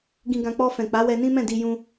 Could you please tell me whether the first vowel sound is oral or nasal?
nasal